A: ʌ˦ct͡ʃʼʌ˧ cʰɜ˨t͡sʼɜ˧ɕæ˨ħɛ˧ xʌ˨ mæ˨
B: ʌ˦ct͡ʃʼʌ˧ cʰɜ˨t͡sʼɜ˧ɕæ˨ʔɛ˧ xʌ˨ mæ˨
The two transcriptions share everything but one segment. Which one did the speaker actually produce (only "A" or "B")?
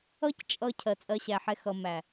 A